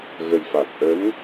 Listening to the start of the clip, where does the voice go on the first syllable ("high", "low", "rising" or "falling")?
low